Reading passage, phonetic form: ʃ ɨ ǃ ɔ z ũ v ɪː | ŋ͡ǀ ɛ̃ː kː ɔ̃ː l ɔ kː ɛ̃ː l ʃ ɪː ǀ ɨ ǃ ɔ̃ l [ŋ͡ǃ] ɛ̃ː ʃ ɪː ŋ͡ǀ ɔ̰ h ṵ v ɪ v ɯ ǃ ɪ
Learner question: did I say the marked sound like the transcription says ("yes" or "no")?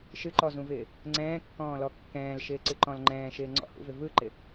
yes